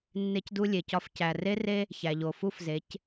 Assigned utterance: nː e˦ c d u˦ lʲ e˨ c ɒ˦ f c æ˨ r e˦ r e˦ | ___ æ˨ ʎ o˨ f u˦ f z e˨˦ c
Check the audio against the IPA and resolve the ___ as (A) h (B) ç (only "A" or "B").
B